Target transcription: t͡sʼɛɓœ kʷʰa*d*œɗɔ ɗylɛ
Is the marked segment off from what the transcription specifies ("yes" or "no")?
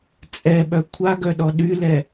yes